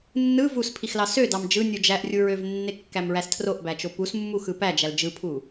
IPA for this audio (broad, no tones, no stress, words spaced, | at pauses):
nːɯ vuspʰixlɑ sødɑm d͡ʒɯnʲu d͡ʒæʔrʲu ɹøvnːekːæmɹæs tʰroʔbæt͡ʃo pusmːuxɯ pæd͡ʒæl d͡ʒɯpʰu